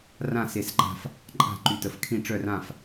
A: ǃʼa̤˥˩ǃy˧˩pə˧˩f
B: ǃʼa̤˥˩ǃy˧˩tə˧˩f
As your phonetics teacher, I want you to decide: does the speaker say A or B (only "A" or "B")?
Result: B